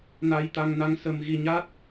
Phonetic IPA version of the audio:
na˧jt̪a˧ŋna˧ŋsə˧m ɣi˧ɲa˦˥t̚

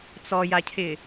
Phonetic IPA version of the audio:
t͡sɔjacʰɪ

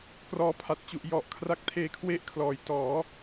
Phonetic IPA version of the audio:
krɔː˧pʰa˨˩t̚t͡ɕu˨˩ʔ jɔ˨˩ʔkʰra˦˥k̚ tʰeː˦˥kʰwe˥˩ʔkʰlɔː˨˩j tɔː˩˦

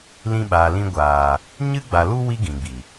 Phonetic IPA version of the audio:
lĩ˧ɓaː˨ lĩ˧ɡʷaː˨ | ɲɨ˦ɡ͡ba˨lu˦ wi˦ɡĩ˨ɡ͡bi˨

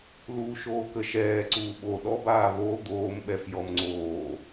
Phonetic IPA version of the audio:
luːʃoːkəʃɛː ǀuːɓo ɗɔbaː βo d̪oːmɓɛf jɔmŋ͡ǀoː

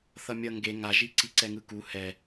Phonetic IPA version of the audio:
θʌmʲʌ ŋɡe ŋaʒi ǀiǀɛŋɯku hɛ

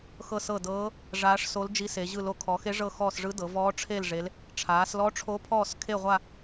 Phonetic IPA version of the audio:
xɤ˦˨sɤ˦˨dɤː˧˥ | ʐaː˧˥ʂso˧˥ld͡ʒi˧˥se˩˧ ʑɯ˦˨lo˦˨ kʰɔ˩˧xe˧˥ʐɤ˦˨ xɔː˦˨sʐɯ˧˥dɤ˩˧ vɔː˧˥ʈ͡ʂʰe˦˨lʐe˩˧l | ʈ͡ʂʰaː˩˧slɔ˧˥ʈ͡ʂʰo˧˥pʰɔː˦˨s kʰe˦˨ʁʷa˦˨

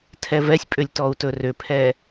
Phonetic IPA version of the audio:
tʰɛvɛsʲpʼʏlʲ tɔu̯tɵrʏpʰɛ

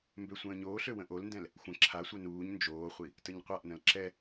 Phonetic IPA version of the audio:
mbøsʷə̃ːɲoːɬø wə̃ʔolndɛ̃l | xʷə̃ ǁʰasʷœ nuːɲ nd͡ʒoːχʷi | təɲqʷaʔnə̃l ǁɛ

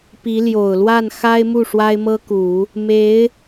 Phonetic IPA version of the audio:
pi˧˥ ljo˨˩ʊ̯lwa˥˩n xa˥ɪ̯mu˥˩ ʂwa˥ɪ̯mɤ˥ku˨˩˦ | me˧˥ɪ̯

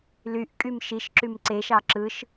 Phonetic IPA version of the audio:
lyʔkʼym ʃiʃǁym ǀeʃɑ ǁɯʃ

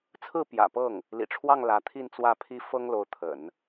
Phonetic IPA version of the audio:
t͡sʰɹ̩˥˩ pjä̰˨˩pɤ˥˩ŋ | lḭ˨˩ʈ͡ʂʰwɑ˥˩ŋ lä˧˥ t̪ʰi˥˧nt͡swä˥˩pʰi˥ fɤ˥ŋlo˧˥ʊ̯t̪ʰə̰˨˩˦n

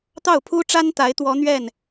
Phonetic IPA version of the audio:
t̪ɑ˥˩ʊ̯pʰu˥ʈ͡ʂa˥n t̪a˧˥ɪ̯ t̪wɔ˧˥n̪ɥɛ˥˩n

